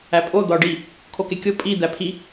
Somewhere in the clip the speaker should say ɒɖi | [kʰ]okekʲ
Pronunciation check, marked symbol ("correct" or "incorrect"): correct